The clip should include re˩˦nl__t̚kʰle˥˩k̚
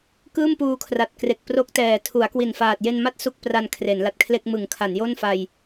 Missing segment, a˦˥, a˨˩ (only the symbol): a˨˩